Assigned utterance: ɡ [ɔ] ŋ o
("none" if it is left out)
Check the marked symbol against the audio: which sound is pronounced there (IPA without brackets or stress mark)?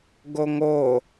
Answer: o